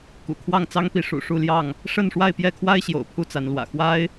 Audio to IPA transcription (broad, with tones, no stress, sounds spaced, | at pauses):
k ṵ˨˩ kʰ w ɑ˥˨ ŋ t͡s ɑ˦ ŋ p i˨˦ ʂ ṵ˨˩ ʂ u˥˨ l j ɑ˥˨ ŋ | ʂ ə˥˨ n ʂ w a˥˨ ɪ̯ p j ɛ˥˨ kʰ w a˦ ɪ̯ ɕ j o̰˨˩ ʊ̯ pʰ u˥˨ t͡s a˨˦ n l w ä̰˨˩ x w a˦ ɪ̯